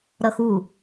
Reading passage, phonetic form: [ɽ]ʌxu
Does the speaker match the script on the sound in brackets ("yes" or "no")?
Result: no